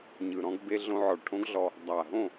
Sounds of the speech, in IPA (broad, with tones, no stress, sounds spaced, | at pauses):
ɲ ɯ˨ ɾ ɔ̃˧ ɡ b e˧ ɮ õ˧ ʕ ɔ˨ ɭ ʈʰ õ˦ ɡ ɮ ɔ˧ | dˤ a˨ ɦ õ˦˨